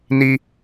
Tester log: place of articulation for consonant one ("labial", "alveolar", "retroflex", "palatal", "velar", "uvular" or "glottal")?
alveolar